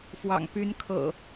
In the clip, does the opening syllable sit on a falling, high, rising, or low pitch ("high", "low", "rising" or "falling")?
low